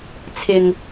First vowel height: high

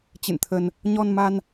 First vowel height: high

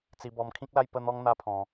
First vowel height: high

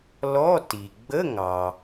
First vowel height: mid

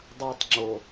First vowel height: low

